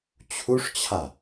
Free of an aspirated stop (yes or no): no